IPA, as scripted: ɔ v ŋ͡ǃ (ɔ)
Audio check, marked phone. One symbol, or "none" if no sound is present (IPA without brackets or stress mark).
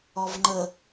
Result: ə